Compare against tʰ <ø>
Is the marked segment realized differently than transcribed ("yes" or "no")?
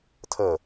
yes